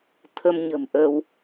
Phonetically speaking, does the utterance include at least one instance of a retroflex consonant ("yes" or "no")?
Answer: no